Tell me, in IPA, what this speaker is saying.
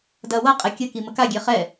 d ɐ w ɤ qʼ ɛ kʲ ə k i m ə k a ɡʲ e χ ɛ

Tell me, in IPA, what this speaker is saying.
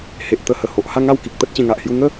h e˨ ʔ t̪ ə˧ h ə˨˩ h o˨ ʔ h a˥˧ ŋ a˥˧ w k i˨ k̚ t̪ ə˦ t̚ t͡ɕ ẽ˧ ŋ a˨ ʔ h j u˦ ŋ ə˦

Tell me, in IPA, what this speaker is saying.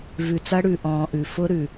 v ʉ˨ t͡s ɐ˦ ɽ ʉ˨ ʔ ɔ̃ː˨ ʔ ʉ˨ f ʊ˦ ɾ ʉ˨

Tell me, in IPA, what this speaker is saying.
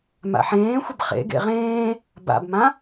m a̰ ħ ẽː xʷ ə b χ ḛ ɡ ḛ ʁ ẽː | b a̰ b m ã

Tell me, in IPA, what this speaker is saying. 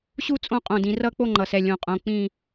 ɕ u˥˧ t͡sʼ õ˦˥ qʼ õ˧˩ d ĩ˩˧ r ʌ˥˧ k͡p o˥˧ ŋ͡ǃ ʌ˩˧ s ɛ˩˧˩ lʲ õ˧˩ qʼ õ˩˧˩ k͡p ĩ˥˧

